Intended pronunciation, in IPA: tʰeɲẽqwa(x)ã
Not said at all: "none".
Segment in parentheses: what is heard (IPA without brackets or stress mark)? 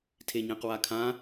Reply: kʰ